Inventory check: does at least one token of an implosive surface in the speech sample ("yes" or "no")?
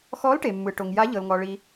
no